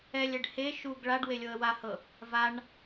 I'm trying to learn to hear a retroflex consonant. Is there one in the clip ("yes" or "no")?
yes